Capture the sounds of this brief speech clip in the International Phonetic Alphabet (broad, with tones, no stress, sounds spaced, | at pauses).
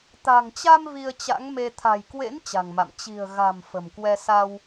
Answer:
t̪ a̤˨˩ ŋ t͡ɕ a˧ m v i˧ ə̯ t͡ɕ a̰˧˥ ŋ m e˧ t̪ʰ a̤˨˩ j k w ḛ˧˥ n t͡ɕ a̤˨˩ ŋ m a̰˧˨ m t͡ɕ i̤˨˩ ə̯ ɣ a̤˨˩ m f ə̤˨˩ m k w ɛ˧ s a˧ w